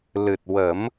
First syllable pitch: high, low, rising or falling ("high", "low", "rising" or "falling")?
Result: low